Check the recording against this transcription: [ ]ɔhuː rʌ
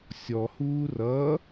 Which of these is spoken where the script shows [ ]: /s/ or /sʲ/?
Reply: sʲ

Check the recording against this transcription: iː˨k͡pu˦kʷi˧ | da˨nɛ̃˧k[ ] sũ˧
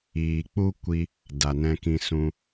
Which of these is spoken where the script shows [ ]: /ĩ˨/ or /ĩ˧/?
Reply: ĩ˧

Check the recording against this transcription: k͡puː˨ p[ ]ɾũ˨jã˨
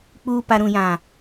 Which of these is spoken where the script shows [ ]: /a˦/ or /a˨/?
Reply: a˨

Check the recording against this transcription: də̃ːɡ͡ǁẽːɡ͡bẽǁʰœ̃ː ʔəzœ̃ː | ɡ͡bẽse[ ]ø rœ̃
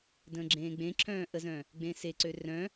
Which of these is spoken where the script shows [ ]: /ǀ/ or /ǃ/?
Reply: ǀ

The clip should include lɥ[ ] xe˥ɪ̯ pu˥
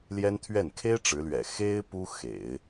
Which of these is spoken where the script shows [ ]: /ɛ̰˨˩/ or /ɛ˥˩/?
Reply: ɛ̰˨˩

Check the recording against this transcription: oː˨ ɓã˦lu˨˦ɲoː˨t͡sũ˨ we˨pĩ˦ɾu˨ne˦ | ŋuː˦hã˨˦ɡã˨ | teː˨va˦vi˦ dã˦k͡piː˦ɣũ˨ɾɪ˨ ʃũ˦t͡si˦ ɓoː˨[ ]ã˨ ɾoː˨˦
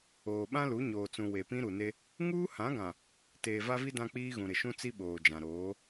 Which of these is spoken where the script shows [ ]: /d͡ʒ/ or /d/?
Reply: d͡ʒ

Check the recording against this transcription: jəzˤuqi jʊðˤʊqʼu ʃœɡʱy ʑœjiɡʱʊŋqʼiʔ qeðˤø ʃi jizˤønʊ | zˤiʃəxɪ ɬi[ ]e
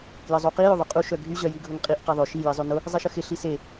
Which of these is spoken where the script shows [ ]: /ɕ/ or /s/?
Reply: s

